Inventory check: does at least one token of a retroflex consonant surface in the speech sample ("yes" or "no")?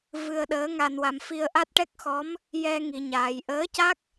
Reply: yes